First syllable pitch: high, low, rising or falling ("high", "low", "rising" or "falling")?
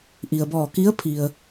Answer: low